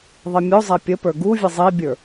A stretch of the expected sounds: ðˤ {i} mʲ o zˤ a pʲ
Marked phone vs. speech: correct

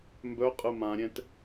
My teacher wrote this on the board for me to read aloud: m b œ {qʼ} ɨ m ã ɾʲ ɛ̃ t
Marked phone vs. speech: correct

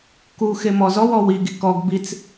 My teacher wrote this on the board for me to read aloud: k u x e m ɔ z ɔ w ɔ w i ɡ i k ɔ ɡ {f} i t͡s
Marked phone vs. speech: incorrect: b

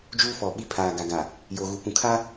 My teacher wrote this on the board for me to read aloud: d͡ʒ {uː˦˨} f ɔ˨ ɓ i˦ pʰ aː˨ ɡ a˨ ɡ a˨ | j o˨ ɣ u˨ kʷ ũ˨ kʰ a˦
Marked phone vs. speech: incorrect: uː˦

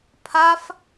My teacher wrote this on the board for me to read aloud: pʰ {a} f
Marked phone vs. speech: correct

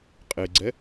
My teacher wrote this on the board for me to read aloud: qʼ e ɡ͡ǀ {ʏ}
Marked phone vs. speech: incorrect: ɛ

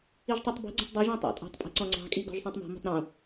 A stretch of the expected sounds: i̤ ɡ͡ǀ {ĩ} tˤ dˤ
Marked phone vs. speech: correct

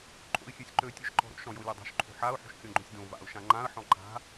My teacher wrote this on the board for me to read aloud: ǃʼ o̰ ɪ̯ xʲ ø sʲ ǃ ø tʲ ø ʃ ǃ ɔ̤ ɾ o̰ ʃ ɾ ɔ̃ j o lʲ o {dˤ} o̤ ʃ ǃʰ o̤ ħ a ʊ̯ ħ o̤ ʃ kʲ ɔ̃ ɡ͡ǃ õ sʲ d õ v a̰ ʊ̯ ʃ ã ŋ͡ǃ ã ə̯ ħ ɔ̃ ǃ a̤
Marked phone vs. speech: correct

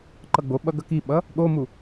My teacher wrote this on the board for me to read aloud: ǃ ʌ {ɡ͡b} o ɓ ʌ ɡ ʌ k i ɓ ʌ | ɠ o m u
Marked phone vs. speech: correct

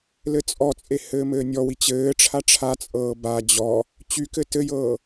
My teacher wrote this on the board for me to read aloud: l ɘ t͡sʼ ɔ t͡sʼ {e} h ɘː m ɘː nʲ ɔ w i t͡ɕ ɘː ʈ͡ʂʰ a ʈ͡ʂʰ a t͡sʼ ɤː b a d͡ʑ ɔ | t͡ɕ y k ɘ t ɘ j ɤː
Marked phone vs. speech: correct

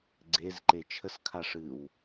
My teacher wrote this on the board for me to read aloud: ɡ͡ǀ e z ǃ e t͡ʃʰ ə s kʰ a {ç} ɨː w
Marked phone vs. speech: incorrect: ʂ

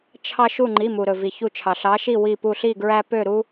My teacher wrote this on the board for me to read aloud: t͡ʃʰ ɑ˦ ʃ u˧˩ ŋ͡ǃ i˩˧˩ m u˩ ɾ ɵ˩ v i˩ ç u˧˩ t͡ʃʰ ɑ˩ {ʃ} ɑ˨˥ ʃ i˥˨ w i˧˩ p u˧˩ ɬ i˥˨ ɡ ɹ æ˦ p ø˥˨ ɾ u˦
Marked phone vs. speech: incorrect: ɬ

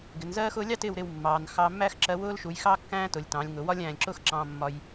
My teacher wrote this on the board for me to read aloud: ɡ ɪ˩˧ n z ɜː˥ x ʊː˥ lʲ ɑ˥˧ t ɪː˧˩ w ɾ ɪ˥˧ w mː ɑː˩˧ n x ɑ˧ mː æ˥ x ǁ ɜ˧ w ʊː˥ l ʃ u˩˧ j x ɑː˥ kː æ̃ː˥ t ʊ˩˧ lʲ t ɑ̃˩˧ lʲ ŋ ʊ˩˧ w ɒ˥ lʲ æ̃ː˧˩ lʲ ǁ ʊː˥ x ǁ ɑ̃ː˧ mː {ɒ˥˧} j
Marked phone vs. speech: incorrect: ɒ˧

